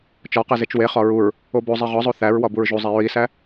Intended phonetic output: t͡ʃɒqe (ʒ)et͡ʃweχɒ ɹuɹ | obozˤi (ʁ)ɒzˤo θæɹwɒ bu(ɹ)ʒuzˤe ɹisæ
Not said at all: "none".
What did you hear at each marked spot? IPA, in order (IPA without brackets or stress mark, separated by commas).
z, ʁ, ɹ